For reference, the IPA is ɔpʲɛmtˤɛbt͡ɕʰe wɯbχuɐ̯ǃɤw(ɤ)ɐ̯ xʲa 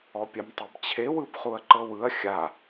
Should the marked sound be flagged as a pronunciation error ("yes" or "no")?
yes